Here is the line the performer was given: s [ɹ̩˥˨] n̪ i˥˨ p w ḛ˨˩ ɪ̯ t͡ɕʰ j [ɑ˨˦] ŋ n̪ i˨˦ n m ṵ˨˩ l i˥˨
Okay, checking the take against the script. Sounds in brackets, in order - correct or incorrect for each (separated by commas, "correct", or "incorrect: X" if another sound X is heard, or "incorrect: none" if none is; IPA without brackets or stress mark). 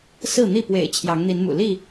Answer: correct, correct